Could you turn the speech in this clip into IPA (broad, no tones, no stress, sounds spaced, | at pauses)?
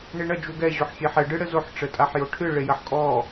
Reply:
ɳ i ɳ ɐ d͡ʒ u ɡ ɛ ʑ o ħ xʲ e ħ ɛ ɖ ɨ ɽ ɘ z o ħ ʈ͡ʂ ɘ tʼ a ħ j o ʈʰ ɨ ɭ e j ɐ ħ kʼ ɔ